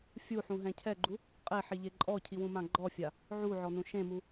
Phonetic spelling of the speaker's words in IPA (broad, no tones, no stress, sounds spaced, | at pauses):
fʲ u ħ ũ ɦ ɛ̃ cʰ ɛ ɡ͡ǃ u | qʼ e ħ i ʎ e ǃʼ ɔ cʰ i w ũ m ã ɡ͡ǃ ɔ fʲ a | ʕ u ʕ ɔ n ũ ʃ ẽ m u